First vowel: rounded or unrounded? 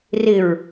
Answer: unrounded